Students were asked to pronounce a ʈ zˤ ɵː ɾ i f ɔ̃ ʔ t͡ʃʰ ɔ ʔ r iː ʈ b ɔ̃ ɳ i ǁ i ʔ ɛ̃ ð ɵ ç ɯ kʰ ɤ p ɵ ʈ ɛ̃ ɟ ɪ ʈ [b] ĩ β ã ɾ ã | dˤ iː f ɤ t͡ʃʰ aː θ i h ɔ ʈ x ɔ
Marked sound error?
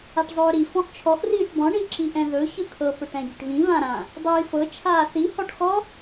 yes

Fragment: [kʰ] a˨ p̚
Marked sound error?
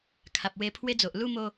no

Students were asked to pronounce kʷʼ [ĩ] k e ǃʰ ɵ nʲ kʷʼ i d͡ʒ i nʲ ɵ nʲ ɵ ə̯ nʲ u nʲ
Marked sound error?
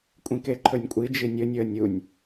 no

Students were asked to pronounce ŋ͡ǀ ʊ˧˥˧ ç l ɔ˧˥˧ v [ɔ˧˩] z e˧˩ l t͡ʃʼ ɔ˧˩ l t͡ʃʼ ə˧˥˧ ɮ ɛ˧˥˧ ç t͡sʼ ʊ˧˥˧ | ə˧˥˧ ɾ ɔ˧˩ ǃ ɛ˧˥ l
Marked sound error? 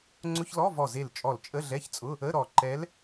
no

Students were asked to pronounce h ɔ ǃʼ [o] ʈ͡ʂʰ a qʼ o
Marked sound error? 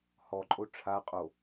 no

